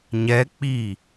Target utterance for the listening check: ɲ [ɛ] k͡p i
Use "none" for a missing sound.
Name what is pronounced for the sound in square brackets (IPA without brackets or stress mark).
ɛ